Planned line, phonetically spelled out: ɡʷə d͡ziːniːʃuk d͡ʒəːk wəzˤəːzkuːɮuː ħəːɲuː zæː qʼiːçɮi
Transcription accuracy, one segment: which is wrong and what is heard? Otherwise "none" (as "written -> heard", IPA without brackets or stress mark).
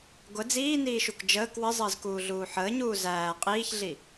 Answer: none